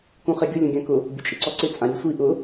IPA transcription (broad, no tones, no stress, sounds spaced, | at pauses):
k ũ χ e ɡʲ ʊ lʲ ũ ɡʲ ã k ʊ | bʲ ʊ t͡ʃʼ ɪ ǀ ɔ ǀ ɪ t͡sʼ ã ɾʲ u sʷ i ʔ ʊ